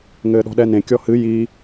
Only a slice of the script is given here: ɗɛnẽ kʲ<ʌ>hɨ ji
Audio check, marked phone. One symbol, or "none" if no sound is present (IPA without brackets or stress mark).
ɔ